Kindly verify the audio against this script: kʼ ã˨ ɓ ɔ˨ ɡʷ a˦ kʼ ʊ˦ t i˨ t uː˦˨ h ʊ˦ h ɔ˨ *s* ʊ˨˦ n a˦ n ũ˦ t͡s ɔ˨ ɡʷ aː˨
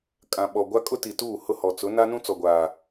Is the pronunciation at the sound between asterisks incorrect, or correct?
incorrect